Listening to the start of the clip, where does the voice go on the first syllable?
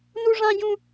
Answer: high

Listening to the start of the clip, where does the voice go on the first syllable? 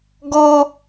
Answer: high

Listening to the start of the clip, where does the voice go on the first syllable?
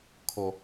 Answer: high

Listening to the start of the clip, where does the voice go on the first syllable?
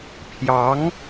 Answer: rising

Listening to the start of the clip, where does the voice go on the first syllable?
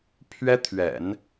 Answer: high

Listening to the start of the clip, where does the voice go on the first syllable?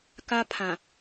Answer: high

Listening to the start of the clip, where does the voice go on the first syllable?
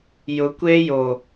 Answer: rising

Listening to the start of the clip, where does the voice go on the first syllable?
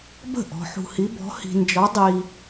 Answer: falling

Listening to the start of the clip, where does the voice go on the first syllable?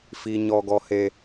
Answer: high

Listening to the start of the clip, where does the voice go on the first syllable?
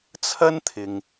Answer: high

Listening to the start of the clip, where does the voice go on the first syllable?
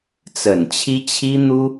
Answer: low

